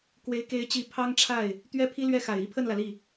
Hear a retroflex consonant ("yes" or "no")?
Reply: yes